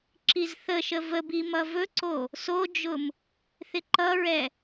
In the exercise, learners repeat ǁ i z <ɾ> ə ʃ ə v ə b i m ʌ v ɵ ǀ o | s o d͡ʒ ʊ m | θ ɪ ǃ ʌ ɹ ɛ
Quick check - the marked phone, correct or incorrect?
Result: incorrect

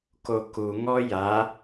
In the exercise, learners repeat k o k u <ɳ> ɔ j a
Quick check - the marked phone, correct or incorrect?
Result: incorrect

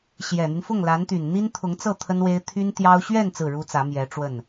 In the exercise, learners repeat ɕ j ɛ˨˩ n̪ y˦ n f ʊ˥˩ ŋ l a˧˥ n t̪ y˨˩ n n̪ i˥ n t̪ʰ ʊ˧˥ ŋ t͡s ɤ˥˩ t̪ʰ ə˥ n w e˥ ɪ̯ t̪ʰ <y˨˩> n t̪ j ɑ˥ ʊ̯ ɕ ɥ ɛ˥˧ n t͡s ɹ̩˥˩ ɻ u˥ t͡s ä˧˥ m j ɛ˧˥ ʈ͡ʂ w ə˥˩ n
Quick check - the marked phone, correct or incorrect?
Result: incorrect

